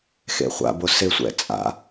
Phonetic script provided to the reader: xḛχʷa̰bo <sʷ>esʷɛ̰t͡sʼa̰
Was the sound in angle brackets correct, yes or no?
no